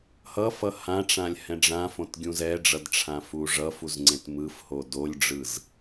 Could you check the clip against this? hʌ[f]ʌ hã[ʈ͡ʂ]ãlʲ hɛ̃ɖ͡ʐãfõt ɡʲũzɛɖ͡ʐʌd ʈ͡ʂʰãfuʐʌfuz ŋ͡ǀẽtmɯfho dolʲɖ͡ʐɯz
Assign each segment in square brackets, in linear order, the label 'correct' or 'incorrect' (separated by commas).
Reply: correct, correct